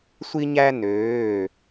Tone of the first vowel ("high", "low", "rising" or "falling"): high